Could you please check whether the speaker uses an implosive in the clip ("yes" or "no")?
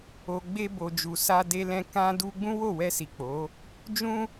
no